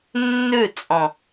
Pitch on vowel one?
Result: falling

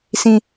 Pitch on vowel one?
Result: high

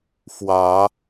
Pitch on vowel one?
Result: rising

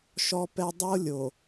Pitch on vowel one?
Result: high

